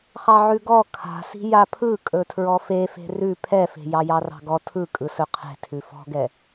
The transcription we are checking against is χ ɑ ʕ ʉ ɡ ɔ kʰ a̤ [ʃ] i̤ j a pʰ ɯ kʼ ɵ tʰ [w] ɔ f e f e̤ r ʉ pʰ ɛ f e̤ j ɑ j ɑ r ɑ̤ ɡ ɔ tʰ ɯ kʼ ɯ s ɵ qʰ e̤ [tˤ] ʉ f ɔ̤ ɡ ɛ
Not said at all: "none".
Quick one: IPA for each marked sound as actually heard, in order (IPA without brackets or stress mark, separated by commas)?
s, ɹ, tʰ